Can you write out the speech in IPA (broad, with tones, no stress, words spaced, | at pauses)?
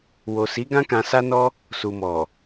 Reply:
wo˨si˨˦ɡã˦ kã˧sa˦nɔ˦ | su˨mɔ˨